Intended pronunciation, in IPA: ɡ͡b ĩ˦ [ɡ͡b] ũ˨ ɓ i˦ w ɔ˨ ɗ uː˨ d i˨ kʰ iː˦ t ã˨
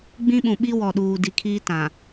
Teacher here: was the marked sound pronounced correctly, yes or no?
no